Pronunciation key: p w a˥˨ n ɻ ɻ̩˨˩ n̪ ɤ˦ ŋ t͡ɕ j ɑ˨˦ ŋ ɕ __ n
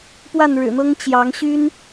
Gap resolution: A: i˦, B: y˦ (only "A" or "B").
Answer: B